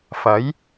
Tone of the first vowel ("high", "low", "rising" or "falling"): rising